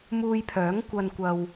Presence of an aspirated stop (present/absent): present